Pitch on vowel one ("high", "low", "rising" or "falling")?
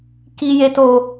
high